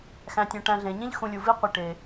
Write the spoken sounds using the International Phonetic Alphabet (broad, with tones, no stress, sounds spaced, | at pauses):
x æ̃˩ tʲ õ˩ ʈ æ̃˨ ɮ ẽ˩ ɲ ĩ˦ ʎ x ũ˨ lʲ u˩ v i˦ qʷ i˩ ʈ e˩